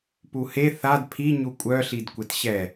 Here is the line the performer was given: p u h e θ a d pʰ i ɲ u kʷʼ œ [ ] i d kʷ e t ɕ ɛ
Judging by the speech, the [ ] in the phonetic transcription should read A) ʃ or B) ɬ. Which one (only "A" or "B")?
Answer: B